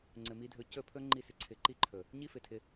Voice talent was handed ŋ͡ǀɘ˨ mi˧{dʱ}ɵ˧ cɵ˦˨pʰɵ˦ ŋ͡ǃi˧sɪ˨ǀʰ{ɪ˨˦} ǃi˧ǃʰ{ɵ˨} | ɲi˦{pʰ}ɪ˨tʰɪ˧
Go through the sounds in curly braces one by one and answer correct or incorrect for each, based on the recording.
correct, correct, correct, incorrect: f

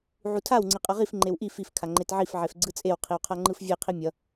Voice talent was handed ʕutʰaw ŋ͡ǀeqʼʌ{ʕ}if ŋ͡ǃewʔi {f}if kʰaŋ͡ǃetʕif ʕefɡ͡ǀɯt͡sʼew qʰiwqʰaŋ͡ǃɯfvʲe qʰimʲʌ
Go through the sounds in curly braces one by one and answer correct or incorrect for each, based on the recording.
incorrect: ʁ, correct

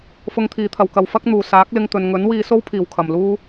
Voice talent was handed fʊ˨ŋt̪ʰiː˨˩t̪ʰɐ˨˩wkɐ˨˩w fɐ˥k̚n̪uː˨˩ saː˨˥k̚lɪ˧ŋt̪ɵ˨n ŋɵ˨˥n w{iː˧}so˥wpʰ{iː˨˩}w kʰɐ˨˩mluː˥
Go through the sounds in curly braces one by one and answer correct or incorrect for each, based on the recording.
correct, correct

